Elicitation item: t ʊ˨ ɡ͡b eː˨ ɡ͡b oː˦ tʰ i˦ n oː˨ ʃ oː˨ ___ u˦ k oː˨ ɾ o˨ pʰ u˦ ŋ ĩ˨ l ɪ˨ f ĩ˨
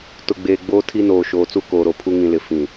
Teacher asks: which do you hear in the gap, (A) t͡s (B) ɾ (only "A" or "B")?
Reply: A